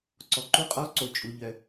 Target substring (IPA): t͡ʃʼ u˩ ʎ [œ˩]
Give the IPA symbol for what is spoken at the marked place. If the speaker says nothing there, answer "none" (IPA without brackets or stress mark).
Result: œ˩